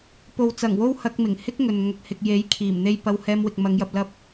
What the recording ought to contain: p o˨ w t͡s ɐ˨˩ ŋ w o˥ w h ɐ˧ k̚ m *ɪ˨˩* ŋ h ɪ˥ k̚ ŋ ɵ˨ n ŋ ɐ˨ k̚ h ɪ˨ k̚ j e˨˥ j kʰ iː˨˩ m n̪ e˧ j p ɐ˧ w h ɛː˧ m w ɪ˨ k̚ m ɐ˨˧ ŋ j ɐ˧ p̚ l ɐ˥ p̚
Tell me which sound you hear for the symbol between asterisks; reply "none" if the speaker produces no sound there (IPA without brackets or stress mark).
ɪ˨˩